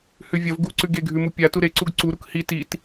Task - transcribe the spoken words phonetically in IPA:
h ʉ vʲ ɐ v ɡ u ǀ ʉ ɡ e ɡʱ ʉ m u pʲ a t u ɾ e ǀ u ɡ ǀ u ɾ u k h i t i t

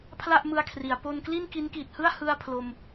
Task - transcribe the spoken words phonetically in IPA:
pʰ l a˥˩ ʔ m ɯ˧ a̯ kʰ r i˩˦ a̯ p o˧ n k l i˥˩ n k i˦˥ n k iː˨˩ t̚ h ɯ˥˩ a̯ h ɯ˥˩ a̯ pʰ l o˧ m

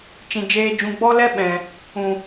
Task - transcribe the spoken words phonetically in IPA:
t͡ʃ ĩ˨ d͡ʒ eː˧ d͡ʒ ũ˧ ɡ͡b ɔ˦ l ɛ˦ ɓ ɛ̃˨ | ũ˨

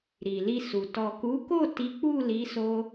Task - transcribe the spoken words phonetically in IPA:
ɾ i˨ l i˧ s u˨ t ɔ˨ k u˨˦ k o˦˨ t i˨˦ k͡p u˦˨ l i˨˦ s o˦

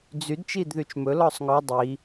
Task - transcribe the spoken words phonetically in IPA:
d͡z y d t͡ʃ i d ð y t͡ʃ m ɵ l ɔ sˤ ŋ ɔ dˤ i

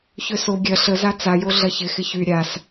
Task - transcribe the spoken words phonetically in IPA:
ç ø s o ɡʲ ɐ ɬ ə z a t͡s a j o ɮ ɐ ç ɪ x ɪ ç y ɾʲ a s

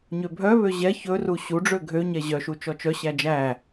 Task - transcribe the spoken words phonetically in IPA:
ɲ ø bʱ œ β ø ʑ ɛ ç ɵ r u ɕ u ɖ͡ʐ ø ɡʱ ø ɲ ɛ ʑ œ ʃ u t͡ʃ ɔ t͡ʃ œ ɕ æ d͡ʒ æ

